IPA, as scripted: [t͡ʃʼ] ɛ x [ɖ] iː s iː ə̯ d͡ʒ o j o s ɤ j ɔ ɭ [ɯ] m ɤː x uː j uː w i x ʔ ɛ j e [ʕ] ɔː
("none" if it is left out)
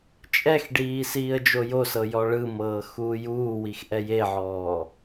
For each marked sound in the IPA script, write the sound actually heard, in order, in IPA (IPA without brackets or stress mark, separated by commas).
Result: t͡ʃʼ, ɖ, ɯ, ʕ